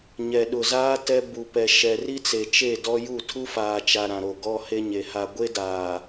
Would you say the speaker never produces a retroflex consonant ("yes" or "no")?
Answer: yes